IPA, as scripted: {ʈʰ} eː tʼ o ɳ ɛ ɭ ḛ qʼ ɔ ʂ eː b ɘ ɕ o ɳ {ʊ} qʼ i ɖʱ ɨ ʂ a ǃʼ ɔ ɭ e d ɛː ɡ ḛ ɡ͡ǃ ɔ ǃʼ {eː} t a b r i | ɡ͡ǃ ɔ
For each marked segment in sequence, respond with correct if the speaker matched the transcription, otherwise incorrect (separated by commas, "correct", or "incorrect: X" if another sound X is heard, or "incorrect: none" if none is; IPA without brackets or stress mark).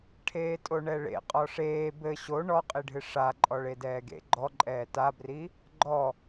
correct, incorrect: ɔ, incorrect: ɛː